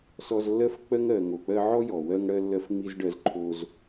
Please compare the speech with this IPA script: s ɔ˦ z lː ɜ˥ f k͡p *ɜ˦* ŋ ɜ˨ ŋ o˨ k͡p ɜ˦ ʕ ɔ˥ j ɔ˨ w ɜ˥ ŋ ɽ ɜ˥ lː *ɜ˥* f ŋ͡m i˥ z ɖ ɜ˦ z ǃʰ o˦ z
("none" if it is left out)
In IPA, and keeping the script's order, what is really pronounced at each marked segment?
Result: ɜ˥, ɜ˥

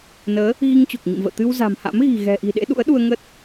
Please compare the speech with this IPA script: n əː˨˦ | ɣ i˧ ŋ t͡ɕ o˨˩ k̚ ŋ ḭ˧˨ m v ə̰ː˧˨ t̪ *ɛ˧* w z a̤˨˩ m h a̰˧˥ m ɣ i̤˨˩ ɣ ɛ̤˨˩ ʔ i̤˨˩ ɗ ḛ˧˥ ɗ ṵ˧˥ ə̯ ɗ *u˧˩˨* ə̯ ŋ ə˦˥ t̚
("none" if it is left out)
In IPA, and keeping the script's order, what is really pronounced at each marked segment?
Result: ɨ˧, u˧

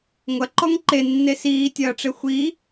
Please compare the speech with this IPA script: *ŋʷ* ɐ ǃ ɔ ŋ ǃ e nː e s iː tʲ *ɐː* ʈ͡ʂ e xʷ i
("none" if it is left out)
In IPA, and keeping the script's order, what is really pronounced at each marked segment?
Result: ŋʷ, ɐː

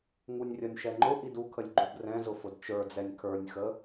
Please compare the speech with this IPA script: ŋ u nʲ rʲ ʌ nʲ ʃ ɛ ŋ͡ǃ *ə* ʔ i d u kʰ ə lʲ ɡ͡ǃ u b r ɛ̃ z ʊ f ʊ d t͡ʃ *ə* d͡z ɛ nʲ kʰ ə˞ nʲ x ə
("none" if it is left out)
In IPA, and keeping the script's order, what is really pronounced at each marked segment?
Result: ʊ, ə˞

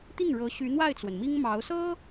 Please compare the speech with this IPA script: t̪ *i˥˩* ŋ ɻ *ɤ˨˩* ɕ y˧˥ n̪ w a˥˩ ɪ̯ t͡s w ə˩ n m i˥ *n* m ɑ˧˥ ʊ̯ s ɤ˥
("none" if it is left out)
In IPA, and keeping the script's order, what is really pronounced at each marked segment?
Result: i˥˩, ɤ˧˥, ŋ

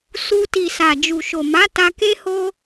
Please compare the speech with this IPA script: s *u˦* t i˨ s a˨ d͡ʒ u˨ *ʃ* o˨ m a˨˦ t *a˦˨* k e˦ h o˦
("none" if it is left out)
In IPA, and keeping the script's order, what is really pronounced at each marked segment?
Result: u˧, ʃ, a˧

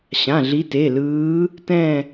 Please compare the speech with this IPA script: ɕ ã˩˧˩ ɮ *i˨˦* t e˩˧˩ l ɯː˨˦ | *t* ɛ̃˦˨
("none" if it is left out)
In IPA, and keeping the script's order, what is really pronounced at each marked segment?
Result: i˨˦, t

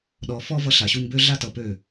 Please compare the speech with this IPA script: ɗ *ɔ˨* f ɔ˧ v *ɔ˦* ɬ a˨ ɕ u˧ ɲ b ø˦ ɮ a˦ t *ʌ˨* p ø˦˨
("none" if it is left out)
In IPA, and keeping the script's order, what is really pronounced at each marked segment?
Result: ɔ˨, ʌ˦, ʌ˨

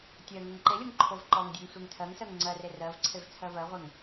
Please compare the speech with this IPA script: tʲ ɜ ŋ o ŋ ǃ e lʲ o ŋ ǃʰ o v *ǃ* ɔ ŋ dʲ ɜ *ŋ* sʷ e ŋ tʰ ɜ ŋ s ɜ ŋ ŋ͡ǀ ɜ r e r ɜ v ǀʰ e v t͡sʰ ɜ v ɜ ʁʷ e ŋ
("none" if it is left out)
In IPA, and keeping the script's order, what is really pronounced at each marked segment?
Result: ǃ, ŋ

